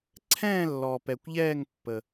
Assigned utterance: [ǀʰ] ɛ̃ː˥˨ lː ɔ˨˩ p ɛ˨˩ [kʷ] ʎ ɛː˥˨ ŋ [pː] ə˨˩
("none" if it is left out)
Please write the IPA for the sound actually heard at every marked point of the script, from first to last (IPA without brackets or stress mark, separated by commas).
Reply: ǀʰ, kʷ, pː